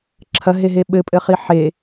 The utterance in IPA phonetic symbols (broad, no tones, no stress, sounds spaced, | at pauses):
ǁʰ ɐ ɦ e ɦ e ɓ ɘ pʼ ɘ χ i ħ e